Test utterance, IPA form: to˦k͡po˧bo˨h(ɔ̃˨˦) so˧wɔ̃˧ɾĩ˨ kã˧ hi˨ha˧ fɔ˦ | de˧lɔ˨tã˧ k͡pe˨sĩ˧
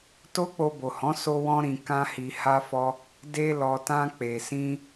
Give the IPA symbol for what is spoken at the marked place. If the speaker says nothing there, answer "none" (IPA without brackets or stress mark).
ɔ̃˨˦